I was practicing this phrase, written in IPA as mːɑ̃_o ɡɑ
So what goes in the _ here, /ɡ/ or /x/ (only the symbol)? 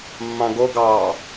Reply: ɡ